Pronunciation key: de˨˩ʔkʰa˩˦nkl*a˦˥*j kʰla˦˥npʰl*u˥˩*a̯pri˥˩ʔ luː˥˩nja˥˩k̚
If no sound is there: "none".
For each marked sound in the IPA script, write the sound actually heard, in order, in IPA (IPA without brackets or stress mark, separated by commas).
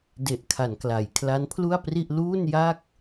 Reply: a˩˦, u˥˩